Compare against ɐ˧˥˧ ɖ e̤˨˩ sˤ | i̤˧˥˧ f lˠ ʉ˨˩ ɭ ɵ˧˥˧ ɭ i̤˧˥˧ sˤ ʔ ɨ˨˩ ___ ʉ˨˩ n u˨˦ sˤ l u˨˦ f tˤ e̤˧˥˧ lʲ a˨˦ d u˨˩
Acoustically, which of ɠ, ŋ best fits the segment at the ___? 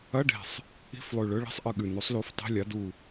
ɠ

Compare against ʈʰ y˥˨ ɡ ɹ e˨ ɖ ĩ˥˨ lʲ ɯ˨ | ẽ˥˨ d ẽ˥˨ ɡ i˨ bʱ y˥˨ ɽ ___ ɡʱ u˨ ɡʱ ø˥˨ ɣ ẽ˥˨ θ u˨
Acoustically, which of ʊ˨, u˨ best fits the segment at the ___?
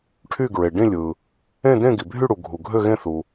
u˨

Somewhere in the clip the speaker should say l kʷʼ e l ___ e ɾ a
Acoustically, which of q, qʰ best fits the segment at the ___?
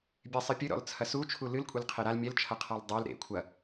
qʰ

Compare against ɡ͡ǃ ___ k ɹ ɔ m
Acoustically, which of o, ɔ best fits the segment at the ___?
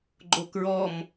o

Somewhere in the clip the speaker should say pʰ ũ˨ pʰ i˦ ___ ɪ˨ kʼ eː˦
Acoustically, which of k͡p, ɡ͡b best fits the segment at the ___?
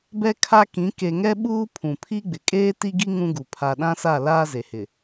ɡ͡b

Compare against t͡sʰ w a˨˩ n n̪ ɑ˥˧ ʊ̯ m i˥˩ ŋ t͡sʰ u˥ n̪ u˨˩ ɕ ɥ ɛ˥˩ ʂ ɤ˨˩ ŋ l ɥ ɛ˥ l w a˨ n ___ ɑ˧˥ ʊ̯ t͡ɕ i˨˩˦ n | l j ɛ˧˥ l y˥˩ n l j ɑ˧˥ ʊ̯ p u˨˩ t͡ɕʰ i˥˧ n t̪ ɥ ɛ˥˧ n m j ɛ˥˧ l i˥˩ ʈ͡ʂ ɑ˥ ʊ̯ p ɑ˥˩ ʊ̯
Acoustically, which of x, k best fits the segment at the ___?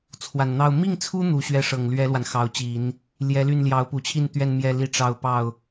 x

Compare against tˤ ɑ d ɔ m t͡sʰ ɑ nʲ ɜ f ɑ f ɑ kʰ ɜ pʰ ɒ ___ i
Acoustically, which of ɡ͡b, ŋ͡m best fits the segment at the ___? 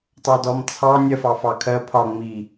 ŋ͡m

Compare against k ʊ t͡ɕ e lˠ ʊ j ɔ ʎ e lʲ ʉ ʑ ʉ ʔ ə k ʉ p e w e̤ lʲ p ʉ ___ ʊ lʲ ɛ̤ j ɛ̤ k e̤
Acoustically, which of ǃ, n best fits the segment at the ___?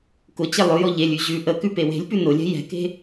n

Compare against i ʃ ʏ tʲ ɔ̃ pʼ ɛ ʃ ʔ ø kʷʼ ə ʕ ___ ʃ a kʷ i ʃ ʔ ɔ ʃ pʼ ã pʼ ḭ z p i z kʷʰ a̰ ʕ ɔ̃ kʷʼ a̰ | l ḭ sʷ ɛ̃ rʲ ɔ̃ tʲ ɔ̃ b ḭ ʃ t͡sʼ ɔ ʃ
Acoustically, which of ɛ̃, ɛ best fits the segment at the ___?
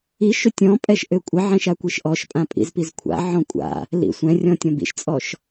ɛ̃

